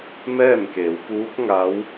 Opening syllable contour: falling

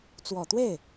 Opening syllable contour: low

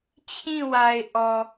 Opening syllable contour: falling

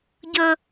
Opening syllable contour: high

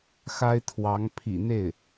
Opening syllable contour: high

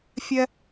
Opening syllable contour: high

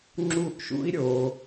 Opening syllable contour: falling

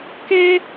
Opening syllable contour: high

